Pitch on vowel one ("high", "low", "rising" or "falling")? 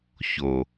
low